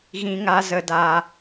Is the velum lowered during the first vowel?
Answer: yes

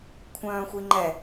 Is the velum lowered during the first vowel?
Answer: yes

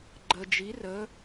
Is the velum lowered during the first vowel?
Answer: no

